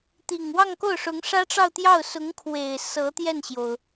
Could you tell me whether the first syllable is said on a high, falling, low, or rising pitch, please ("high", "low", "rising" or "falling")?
low